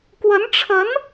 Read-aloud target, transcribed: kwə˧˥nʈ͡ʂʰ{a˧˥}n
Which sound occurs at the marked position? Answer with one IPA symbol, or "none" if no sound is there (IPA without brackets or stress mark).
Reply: ə˧˥